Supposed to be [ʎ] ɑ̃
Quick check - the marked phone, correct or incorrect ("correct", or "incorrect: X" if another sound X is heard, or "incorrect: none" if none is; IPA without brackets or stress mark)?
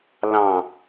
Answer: incorrect: l